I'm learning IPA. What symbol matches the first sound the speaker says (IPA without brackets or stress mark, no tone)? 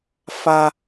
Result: f